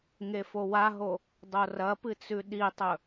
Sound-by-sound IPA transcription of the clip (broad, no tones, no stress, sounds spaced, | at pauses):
ŋ e f o w a ɦ o | dˤ o r ɐ p ɨ t͡s ʉ ɗ i tˤ ɵ